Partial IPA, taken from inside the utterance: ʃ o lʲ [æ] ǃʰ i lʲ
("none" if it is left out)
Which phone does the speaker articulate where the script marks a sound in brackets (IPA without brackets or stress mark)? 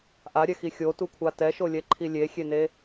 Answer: ɛ